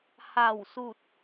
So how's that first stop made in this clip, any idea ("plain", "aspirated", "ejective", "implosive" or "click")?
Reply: plain